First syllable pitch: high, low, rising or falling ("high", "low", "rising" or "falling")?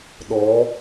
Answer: rising